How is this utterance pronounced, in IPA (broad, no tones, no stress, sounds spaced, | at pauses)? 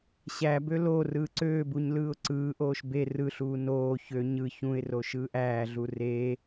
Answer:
ɕ æ b ø l o r ɯː ǀ øː b u ɲ l ɯː ʊ̯ ǀ ɯː ʔ oː ʃ b e r ɯ ɬ uː n oː ç ø ɲ ɯ ç ũ ɪ̯ r o ʃ ɯː ʔ æː ɮ u r e